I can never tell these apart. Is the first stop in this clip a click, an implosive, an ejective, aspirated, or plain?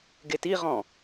plain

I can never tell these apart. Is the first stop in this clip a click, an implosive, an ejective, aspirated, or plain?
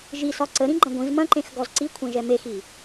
click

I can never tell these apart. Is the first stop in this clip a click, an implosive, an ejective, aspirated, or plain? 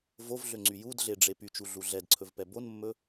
click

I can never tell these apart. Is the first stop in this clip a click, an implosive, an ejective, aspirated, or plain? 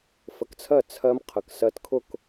plain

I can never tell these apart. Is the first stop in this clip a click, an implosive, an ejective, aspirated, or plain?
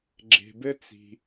click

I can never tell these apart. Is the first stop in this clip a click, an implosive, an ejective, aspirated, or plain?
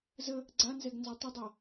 click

